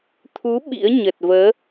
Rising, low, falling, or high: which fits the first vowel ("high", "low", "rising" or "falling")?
rising